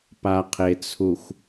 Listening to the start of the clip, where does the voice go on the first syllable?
low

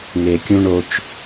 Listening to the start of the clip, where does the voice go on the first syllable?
low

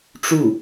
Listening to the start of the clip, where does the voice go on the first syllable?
falling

